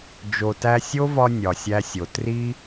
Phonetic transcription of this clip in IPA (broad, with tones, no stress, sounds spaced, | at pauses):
d͡ʒ o˨ t æ˧ sʲ o˦ v ɒ˧ nʲ ɒ˨ sʲ æ˧ sʲ o˨ t r i˦